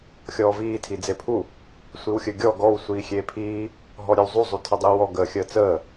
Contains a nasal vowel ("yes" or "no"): no